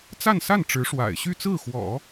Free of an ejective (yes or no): yes